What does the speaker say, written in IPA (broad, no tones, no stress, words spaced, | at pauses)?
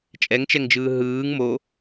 t͡ʃʼɛŋt͡ʃɛŋd͡ʒɯː ɦɯːŋ mo